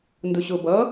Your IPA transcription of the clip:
ndʊɕʊ bʌ

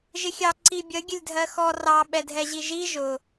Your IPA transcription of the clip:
ʒɪxʲɑ ǀibʲə ɡʲəlʲdʱɜxɔ rɑ ɓɛdʱɛʑiʒi ʒʊ

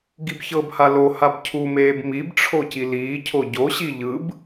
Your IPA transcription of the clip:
ɡibçɤbha lo habcʰumeːb mibʈ͡ʂʰo ciliːcʰo ɟoɕi ʎɯb

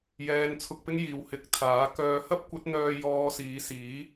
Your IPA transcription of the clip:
jɛː˨n t͡sʰʊ˧k̚pɪ˥ŋjiː˨w hɪ˨˥k̚ t̪ʰaː˨˥ kœː˨hɐ˥p̚kʷɐ˨˥t̚ n̪œː˧ jɔː˧siː˨˧siː˨˥

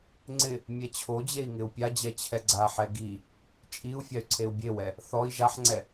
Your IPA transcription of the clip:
ŋ͡ǀɪ | mʲɛt͡ɕʰod͡ʑei̯ ŋɪu̯pʲad͡ʑɛ t͡ɕʰɛɡ͡ǀaħɛ ɡi | t͡ʃʼiu̯ fʲay̯ǀʰeu̯bʲewɛ | θɔi̯ ʒaħŋ͡ǀɛ

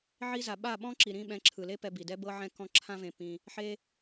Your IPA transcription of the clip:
ʕi˧za˨ ɓa˦˨ɓɔ̃˦ǁi˨ ɾĩ˦ ɓɛ̃˨˦ǁʰɯ˨le˦ pɛ˧bi˨ dɛ˧bɤ˧ʕɛ̃˧ kɔ̃˧ ǁʰã˦vẽ˧pːĩ˧ | ħe˧

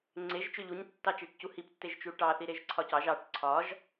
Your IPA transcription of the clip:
ŋ͡ǀeʒ t͡ʃøʎuɲ tːɑt͡ʃeʈcuhip tːeʒt͡ʃuʈɑ θiɾeʒǀʰɒcɑʒ ɑʈ ǀʰɒʒ

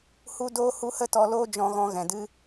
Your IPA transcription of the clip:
hu˦doː˦ hu˦hə˦tɔ˧loː˦ d͡ʒɔ̃˧ɣɔ̃˧ ɣɛ̃˨dɨ˦

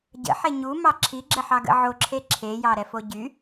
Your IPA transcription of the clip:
ɟə̰ħe ɲumɑ ǁʰiɡ͡ǁəħɑɡə̰ ʕoǁʰe ǁʰejɑɾɛfo ɟy

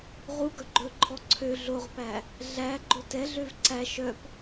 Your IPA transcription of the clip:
ʁu ɡœɡ͡ǃɵǃʰɔ ǀʰø ɮoʁpæ | ɮæ ɡ͡ǃotɛɮøv ǀæ ʃœp

